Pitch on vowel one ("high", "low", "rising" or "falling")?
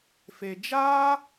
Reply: low